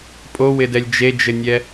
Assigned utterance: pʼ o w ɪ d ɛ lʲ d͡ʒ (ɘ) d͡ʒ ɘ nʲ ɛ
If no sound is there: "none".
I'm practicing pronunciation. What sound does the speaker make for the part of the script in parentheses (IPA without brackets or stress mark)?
e